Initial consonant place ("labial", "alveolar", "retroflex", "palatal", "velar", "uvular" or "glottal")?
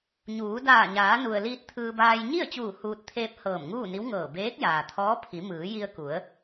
palatal